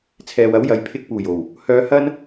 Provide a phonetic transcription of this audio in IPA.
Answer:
t͡sʰɛː˨wɐ˨˥w jɐ˨jpʰɪ˧k̚puː˨˩jo˨˩w | hœː˧ hɐ˥n

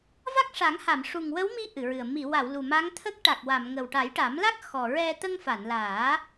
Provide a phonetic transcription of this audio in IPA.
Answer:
va˦˥k̚ʂa˨˩˦ŋha˨˩˨m ʂu˨˩ŋwə˧˥wmi˧˥ ʔɨ˨˩˨ɹɨ˨˩ə̯ mi˨˩˨wa˨˩˨w lu˨˩ma˧˥ŋ t̪ʰə˦˥k̚ʈa˨˩k̚wa˨˩˨mŋə˨˩w ʈa˨˩˦jʈa˨˩˦mla˦˥k̚ xɔ˨˩ɹɛ˧ t̪ə˧ŋfa˨˩˨nlaː˨˩˦

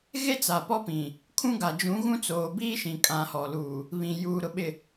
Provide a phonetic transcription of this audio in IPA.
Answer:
ɣe˦ t͡sa˨pɔ˦pĩ˨ | kʰũ˦ɡa˨ d͡ʒũ˨˦ɣũ˦t͡soː˨ biː˦ʃĩ˨ kʼã˨ hɔ˨luː˨ | βĩ˨ juː˨ɾʊ˨ɓɪ˨

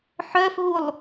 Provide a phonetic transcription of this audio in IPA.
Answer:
ħœfɦulˠ

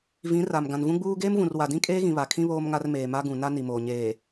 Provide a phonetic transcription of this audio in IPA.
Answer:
vĩ˨˦ ra˨m ɡã˨nvũ˦ɡ͡buː˦ ɡeː˦mvũ˨r wa˨dĩ˦kʼeː˦ɣĩ˨ βa˨kʰĩ˦ βoː˦mŋa˦rmeː˨ma˦ ɡũ˨ na˦ ni˨moː˨ ɲeː˨

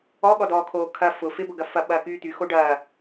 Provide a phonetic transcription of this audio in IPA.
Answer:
ɔɠɔdɔːkʰoː kʰɐ fʊ fɪbʊɡɐ fɐɓɐːkyː t̪yxo ɖɐː

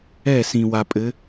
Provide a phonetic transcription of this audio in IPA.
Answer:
ɛ˦˨sĩ˨ wa˨pʼɘ˨˦

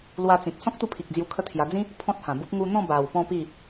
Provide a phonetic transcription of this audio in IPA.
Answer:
lwa˧t͡sĩ˨k̚ sɔ̃˦k̚t̪u˧pʰi˨k̚ d͡zju˧kʰə˦t̪ʰja˧ d͡zĩ˦ | pʰɔ̃˦t̚hã˨˩bu˦p̚ ŋu˧n̪ɔ̃˥˧ ba˨˩w pɔ̃˥˧pi˥˧

